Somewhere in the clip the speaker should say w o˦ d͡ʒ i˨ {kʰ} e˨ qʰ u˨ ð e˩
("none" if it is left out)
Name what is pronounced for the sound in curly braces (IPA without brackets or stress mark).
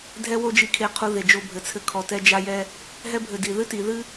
kʰ